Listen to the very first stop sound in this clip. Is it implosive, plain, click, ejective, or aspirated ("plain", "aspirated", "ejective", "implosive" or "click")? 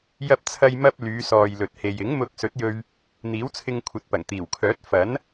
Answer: plain